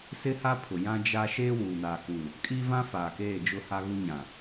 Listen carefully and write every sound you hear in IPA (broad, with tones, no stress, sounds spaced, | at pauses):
s ɪ˦ h a˦ pʰ ʊ˨ j ã˦ d͡ʒ a˦ ʃ eː˦ w uː˨ n aː˨ k u˨ | kʼ iː˦ v ã˦ f aː˨ k eː˦˨ d͡ʒ ʊ˦ h a˦ ɣ u˦ ɲ ã˨